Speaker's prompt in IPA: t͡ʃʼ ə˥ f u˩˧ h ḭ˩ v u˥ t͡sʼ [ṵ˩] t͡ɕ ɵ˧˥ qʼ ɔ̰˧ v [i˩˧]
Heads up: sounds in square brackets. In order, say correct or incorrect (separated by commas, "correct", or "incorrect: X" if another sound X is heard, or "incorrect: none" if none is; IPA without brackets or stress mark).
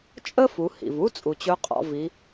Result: incorrect: u˩, correct